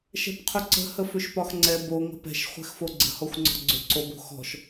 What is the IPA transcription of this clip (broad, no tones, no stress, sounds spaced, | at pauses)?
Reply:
ʃ ɛ̤ p qʰ ʏ ǀ ə̤ h ə f ʏ ʃ p ɒ x ŋ͡ǀ ɛ b o ŋ ə̤ p ɛ̤ ʃ χʷ ɛ̤ x f o ɡ͡ǀ ə̤ h ɔ xʷ ŋ͡ǀ ɔ̤ ɡ͡ǀ ʏ ǀ o b o̤ x ɔ̤ ʃ